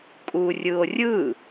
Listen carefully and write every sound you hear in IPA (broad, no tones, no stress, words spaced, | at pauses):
kʼurʲɯo̯rʲɯ